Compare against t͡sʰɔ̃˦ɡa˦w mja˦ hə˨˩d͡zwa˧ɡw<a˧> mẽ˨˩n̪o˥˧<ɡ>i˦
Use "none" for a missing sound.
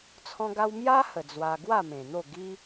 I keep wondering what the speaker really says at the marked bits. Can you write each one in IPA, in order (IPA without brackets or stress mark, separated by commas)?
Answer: a˥˧, ɡ